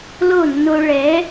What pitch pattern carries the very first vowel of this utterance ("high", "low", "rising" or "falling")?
falling